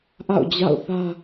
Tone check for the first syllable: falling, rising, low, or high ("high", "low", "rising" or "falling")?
falling